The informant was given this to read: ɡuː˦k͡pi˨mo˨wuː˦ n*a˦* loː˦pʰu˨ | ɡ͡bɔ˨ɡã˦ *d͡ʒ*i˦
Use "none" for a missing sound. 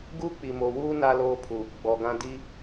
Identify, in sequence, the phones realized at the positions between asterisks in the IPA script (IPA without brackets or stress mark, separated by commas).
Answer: a˦, d